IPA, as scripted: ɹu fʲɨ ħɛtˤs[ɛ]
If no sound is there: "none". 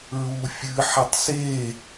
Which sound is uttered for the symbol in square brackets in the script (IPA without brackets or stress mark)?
e